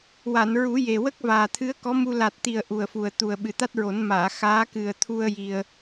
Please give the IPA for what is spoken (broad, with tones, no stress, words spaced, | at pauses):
wa˨˩˨nɹu˨˩˦ je˨˩wə˦˥k̚ vaː˨˩t̪ʰɨ˧˥ə̯kɔ˧˥mu˧ la˨˩t̚t̪i˨˩ə̯ ʔu˨˩ə̯fu˨˩ə̯t̪u˨˩ə̯ ɓɨ˨˩t̪a˦˥t̚ɹo˨˩˦n maː˨˩˨ xaː˧˥ kɨ˨˩ə̯t̪ʰu˧ə̯ ji˧ə̯